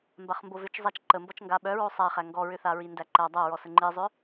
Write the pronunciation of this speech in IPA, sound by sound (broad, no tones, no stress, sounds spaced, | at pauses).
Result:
m b a χ m b o v ʏ t͡ʃ zˤ æ t͡ʃ ǃ ə m b ɔ t͡ʃ ŋ ɡ a ɓ œ ɹ o sˤ æ χ æ ŋ ɡ ɔ ɹ ʏ θ a ɹ i n d æ ǃ æ dˤ æ ɹ ɔ s ə ŋ͡ǃ i zˤ ʏ